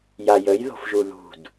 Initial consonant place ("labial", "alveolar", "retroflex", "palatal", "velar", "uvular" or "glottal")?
palatal